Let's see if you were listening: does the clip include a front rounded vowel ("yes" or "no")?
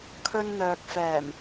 yes